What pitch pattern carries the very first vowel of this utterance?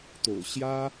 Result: low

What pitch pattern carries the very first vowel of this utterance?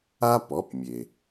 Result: high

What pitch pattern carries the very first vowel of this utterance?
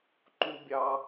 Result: high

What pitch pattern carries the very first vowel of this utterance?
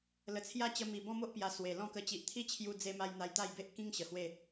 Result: low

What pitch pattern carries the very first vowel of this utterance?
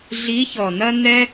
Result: rising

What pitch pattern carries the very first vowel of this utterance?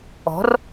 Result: rising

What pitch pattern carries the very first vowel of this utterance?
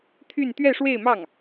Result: falling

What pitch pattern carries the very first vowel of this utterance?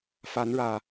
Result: rising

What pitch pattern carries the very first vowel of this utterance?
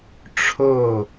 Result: falling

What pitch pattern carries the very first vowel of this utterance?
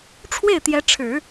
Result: falling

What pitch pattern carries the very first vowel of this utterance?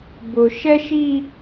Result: low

